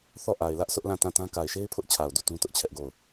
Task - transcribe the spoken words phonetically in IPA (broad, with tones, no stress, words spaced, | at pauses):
θɔ˦˨ʔa˨ɪ̯lä˦ʔ sʰʊ˦ʔlã˦˨tã˦˨tã˦ ka˨ɪ̯ʃe˦ɪ̯pʰʊ˦ʔt͡ɕʰa˨ʊ̯ du˦˨tũ˦ tʊ˦ʔt͡ɕʰɛ˦ʔɡo˦˨ʊ̯